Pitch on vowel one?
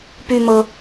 high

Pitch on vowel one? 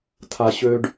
low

